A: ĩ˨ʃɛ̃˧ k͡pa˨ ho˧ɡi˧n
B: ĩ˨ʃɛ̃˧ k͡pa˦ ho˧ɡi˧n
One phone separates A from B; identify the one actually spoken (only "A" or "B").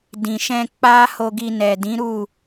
B